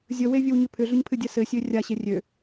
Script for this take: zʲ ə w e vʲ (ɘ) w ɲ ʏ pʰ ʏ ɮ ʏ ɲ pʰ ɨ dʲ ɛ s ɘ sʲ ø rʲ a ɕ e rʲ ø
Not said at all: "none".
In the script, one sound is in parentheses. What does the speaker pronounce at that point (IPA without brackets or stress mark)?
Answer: ɘ